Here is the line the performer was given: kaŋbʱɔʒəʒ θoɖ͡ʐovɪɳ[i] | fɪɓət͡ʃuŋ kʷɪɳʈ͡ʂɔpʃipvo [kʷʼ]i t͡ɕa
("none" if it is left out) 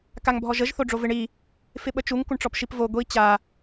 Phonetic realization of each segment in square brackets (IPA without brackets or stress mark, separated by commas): i, ɡʷ